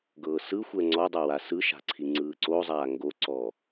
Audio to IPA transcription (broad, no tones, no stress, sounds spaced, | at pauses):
ɡ ɤː s ɯ xʷ ɛ ŋ͡ǀ ɔ dˤ a w a s ɯ ʃ a̤ ǀʰ i ŋ͡ǀ ɯː ǀ o zˤ aː ŋ ɡ o ǀ ɔ